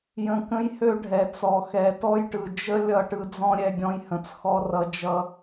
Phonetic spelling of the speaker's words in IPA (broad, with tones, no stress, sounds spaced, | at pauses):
j ə̃˧ k ə̃˦ j h ø˦ ɖʱ ɛ˨ t͡s ɔ˨ x ɛ˨˦ t ɔ˦ j ʈ ɯ˨ d͡ʒ ə˦ lʲ ʌ˦˨ ʈ ɯ˧ d͡z ɔ̃˦ ɾʲ ɛ˧ ɡʲ ɔ̃˧ j h ə̃˨ t͡s x ɔ˧ r ʌ˧ d͡ʒ ʌ˧